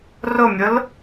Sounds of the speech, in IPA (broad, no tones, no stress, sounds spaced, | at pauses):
r ʊ mʲ ʊ l